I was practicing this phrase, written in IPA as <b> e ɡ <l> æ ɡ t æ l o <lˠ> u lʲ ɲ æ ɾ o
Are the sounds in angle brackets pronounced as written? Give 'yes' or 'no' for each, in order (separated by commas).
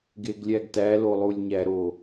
no, no, yes